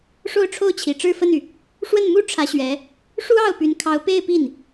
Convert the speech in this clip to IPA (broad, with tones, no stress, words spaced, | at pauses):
ʂo˥˧ʊ̯ʈ͡ʂʰo˥˩ʊ̯t͡ɕʰi˨˩ ʈ͡ʂɻ̩˥˧fə˥˩ny˩ | ʂwə˥˩nmu˥ ʈ͡ʂʰä˧˥ɕɥɛ˧˥ | ʂu˥ɑ˥˩ʊ̯py˧˥nkʰɑ˧˥ʊ̯ pe˥˧ɪ̯pi˥˩n